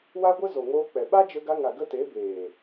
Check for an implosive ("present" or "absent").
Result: present